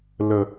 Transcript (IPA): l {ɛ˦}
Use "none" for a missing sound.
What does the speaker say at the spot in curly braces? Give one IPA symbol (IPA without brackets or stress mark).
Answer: ə˦